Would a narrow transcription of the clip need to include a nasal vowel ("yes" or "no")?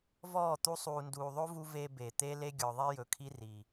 no